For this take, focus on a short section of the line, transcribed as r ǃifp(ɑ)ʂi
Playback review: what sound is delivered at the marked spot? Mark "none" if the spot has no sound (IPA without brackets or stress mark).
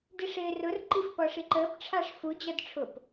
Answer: ɔ